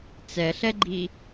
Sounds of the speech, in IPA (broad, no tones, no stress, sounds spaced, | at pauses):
t͡s ɛ ɬ ɛ ɡ͡ǃ i